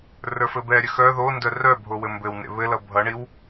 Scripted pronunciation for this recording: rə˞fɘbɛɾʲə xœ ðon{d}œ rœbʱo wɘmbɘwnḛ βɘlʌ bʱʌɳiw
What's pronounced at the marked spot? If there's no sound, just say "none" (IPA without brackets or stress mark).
d